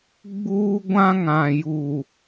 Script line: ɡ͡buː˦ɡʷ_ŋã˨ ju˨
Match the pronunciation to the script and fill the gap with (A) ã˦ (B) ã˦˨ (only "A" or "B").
A